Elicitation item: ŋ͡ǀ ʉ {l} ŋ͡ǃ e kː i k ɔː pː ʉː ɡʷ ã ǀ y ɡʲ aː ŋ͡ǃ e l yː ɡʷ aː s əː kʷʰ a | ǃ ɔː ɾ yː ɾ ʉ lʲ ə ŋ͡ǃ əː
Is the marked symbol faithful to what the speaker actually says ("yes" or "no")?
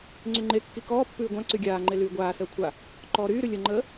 no